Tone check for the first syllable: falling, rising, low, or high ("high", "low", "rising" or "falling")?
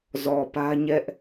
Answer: low